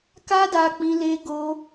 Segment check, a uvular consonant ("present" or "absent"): absent